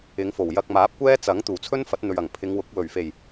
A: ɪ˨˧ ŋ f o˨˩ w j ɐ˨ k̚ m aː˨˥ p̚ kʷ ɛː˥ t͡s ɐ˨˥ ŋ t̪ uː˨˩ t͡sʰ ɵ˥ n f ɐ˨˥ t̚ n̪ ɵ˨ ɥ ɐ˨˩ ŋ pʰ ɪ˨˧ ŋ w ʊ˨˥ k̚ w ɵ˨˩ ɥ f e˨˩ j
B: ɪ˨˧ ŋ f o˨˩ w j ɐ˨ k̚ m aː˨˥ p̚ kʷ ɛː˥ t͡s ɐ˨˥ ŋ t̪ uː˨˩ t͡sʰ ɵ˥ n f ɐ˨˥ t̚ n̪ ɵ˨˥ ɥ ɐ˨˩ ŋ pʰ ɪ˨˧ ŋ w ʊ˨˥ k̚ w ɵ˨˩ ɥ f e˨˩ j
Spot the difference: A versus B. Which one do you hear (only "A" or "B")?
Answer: A